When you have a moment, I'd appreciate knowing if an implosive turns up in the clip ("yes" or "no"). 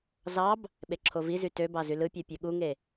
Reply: yes